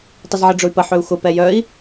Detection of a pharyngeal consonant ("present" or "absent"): present